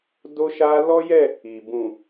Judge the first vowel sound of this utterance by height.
mid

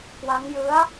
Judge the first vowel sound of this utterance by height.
low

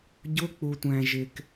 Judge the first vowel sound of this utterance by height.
high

